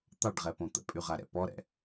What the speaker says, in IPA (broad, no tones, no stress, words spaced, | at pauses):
t̪ɑɖʁɛpõ t̪ə̰pʼyʁaɾɛ̰ pɔɾɛ̰